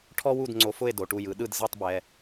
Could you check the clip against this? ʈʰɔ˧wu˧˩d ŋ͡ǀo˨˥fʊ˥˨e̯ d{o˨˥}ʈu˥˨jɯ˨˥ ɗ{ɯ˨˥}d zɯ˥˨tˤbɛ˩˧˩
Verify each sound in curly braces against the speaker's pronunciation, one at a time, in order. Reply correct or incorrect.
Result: incorrect: o˩˧, incorrect: ɯ˥˨

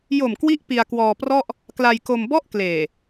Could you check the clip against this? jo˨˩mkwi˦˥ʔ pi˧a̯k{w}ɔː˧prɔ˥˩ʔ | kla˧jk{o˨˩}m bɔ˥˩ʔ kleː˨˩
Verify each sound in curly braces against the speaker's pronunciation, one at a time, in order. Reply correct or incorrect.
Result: correct, incorrect: o˧

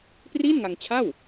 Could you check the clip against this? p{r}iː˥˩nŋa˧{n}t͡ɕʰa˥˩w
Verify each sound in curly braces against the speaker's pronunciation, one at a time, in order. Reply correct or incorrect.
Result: correct, incorrect: ŋ

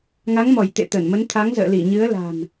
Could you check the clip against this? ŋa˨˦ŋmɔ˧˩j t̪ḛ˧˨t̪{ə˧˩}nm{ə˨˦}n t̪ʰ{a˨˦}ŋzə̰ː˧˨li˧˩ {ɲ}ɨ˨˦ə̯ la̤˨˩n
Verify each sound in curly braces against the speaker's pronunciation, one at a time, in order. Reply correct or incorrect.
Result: correct, correct, correct, correct

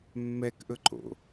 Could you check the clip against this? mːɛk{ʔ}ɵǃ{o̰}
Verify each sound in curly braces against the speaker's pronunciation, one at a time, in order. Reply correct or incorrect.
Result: correct, correct

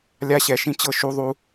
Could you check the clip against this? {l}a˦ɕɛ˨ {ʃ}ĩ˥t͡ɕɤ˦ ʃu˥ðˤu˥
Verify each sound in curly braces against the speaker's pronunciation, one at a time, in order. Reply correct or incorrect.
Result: incorrect: lʲ, correct

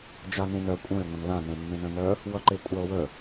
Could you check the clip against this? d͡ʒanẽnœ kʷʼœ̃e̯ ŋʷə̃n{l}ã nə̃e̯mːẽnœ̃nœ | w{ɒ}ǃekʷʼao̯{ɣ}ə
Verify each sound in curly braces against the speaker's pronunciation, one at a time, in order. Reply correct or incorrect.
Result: correct, incorrect: ʌ, incorrect: w

